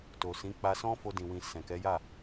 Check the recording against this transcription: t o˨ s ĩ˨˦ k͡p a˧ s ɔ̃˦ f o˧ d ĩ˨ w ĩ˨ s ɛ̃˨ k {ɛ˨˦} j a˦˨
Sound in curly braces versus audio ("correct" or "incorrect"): correct